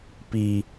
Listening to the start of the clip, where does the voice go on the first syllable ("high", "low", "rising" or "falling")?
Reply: high